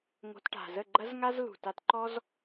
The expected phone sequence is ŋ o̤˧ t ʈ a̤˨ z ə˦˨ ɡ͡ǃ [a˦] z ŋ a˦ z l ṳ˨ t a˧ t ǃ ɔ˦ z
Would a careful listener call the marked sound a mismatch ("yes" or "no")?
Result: yes